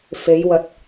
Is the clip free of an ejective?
yes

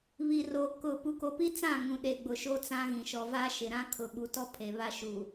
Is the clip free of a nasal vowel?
no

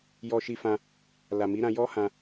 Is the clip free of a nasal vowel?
no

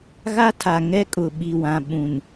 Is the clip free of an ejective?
no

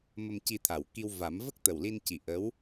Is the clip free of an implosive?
yes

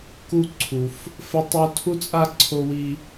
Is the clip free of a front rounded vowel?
yes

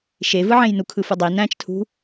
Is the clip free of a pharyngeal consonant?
no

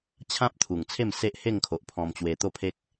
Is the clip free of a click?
yes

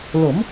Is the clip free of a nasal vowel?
yes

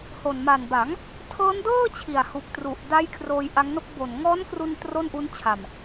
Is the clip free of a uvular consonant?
yes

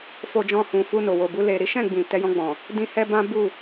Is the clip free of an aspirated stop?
yes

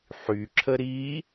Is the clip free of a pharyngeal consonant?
no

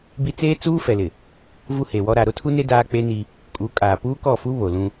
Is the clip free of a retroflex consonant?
yes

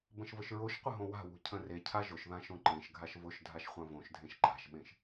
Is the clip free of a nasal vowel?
no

